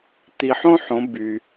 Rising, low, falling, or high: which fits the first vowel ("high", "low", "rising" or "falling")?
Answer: low